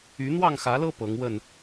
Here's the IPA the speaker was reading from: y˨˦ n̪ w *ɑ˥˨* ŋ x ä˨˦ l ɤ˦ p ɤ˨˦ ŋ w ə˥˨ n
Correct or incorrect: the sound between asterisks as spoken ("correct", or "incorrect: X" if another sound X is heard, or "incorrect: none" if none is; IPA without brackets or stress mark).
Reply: correct